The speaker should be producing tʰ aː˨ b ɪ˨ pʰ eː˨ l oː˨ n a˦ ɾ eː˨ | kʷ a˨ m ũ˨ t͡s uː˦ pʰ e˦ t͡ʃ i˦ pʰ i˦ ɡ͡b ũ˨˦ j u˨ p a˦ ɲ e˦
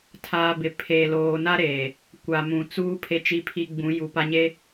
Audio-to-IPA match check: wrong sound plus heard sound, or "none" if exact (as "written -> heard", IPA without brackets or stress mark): none